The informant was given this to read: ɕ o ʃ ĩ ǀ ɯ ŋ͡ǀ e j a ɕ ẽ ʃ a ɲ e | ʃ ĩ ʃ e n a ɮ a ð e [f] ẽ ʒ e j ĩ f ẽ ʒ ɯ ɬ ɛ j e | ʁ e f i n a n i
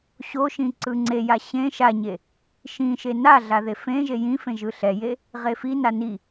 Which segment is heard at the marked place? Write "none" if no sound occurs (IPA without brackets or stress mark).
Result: f